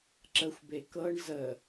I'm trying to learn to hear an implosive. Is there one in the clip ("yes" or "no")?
no